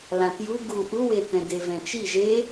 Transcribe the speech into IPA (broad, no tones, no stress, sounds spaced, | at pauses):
l ã t j u ɡ u ʔ u w e t ɛ̃ d e v ɛ̃ t͡ʃ i ʒ e